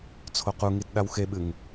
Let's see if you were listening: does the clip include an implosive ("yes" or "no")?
yes